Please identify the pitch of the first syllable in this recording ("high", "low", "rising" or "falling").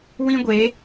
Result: high